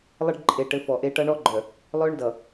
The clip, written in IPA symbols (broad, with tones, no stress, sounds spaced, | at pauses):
lˠ ɘ˦ ɖ ǃʼ e˨ ʈ ɘ˨˦ f ɔ˨ ʔ e˦ ʈ ʌ˦ ɳ ɔ˦ ɡ͡ǃ œ˨ | lˠ œ˦ ɳ d ʌ˨